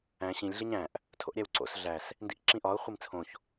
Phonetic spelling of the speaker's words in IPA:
æ̃ ɕ ĩ lʲ ɮ i ɲ æ̃ ʔ | tʰ o̰ ʔ ɾʲ æ w ǀ o̰ s ɮ æ s | n d i ʔ ǁ ĩ ʔ ɒ ʊ̯ χʷ i m t͡sʰ õ ç

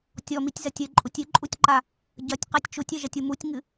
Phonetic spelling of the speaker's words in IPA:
tʲ ɔ m i tʲ z ɐ tʲ ɘ ǃʼ u tʲ ɨ ǃʼ u tʲ ǃ a | ɟ ɐ tʲ q e tʲ t͡ʃ u tʲ ɛ ʒ ɐ tʲ u m u tʲ ŋ ɨ

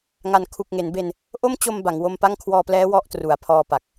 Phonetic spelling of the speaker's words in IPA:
ŋ a˩˦ n kʰ u˨˩ k̚ ŋ e˩˦ n b e˧ n | ʔ o˥˩ m t͡ɕ o˧ m b a˩˦ ŋ w o˧ m p a˥˩ ŋ kʰ w ɔː˧ p l ɛː˦˥ w ɔ˦˥ ʔ t r u˩˦ a̯ pʰ ɔː˧ p a˨˩ k̚

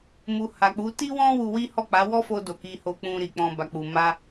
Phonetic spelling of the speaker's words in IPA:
m u˨ h a˨ k͡p u˨˦ t i˦ w ɔ̃˦ w u˧ w i˦ h ɔ˦˨ k͡p a˨˦ w ɔ˦ f o˧ d o˨ k i˧ h o˧ k͡p ũ˧ ɾ i˨ k͡p ɔ̃˧ b a˨ k͡p u˨ m a˧

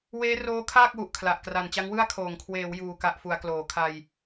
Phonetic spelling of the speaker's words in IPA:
w eː˦˥ r oː˦˥ kʰ aː˥˩ k̚ w u˨˩ ʔ kʰ l a˨˩ ʔ k r a˨˩ n t͡ɕ a˦˥ ŋ w ɯ˥˩ a̯ kʰ oː˨˩ ŋ kʰ w eː˩˦ w j uː˨˩ k a˨˩ ʔ f u˩˦ a̯ k l oː˨˩ kʰ a˧ j

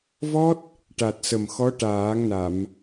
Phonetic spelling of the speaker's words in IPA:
v ɔ˦˥ t̚ | ʈ a˨˩ t̚ s ə˨˩ m x ɔ˧˥ ʈ aː˨˩˦ ŋ n a˨˩˨ m

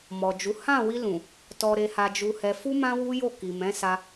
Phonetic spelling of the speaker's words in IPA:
m ɔ˨ d͡ʒ u˨˦ h ã˦˨ w i˧ l ũ˨ | t ɔ˨ ɾ e˧ h a˧ d͡ʒ u˧ h ɛ˧ f u˦ m ã˦ w u˦ j o˦˨ k i˨ m ɛ̃˨˦ s a˧

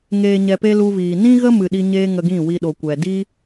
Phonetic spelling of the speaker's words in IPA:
ŋ eː˨ ɲ ɛ˨ p e˧ l u˧ v iː˨ n ĩ˦ ɣ ə˦ m ɨ˨ ɗ i˧ ɲ eː˦ ŋ ə˧ ɡ ĩ˦˨ w i˧ ɗ o˨ kʷ ɛ˨ d i˦

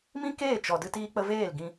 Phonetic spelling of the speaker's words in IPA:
m ĩ˦ k eː˦˨ t͡ʃ ɔ˧ d ɨ˦ t iː˧ k͡p ə˧ v eː˦˨ l ɡ ĩ˧

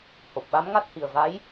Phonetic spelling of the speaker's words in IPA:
h o˨˩ p̚ ɓ a˧˥ m ŋ a˦˥ t̚ h i˨˩ ə̯ v a˧˥ j

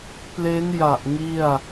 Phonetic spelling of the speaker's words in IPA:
p l e˦˥ n j a˨˩ ʔ ŋ i˥˩ a̯

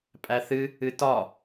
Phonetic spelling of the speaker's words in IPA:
pʼ æ θ ɨ | ɨ t ɒ

